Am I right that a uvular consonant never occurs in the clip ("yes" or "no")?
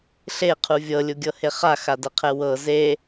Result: no